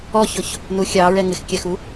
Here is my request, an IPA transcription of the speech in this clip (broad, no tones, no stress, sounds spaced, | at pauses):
ɔ ç ʊ ç | n u xʲ ɑ ɹ ɛ ŋ ɪ x kʲ æ x u